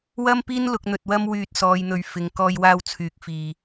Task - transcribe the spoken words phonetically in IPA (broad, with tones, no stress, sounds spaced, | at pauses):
w ɐ˥ m p iː˥ n l ʊ˧ k̚ n̪ ɵ˧ t̚ w ɐ˥ m w yː˧ t̚ s ɔː˨˧ j n̪ ɵ˨ ɥ f ɪ˨ ŋ k ɔː˧ j w aː˧ w t͡sʰ yː˨˥ k̚ f iː˨